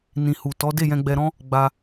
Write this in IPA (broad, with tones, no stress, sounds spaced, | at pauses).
n ĩ˨ h u˨ t ɔ˨˦ d e˦˨ j ɛ̃˧ ɡ͡b ɛ˧ ɾ ɔ̃˦ | ɡ͡b a˧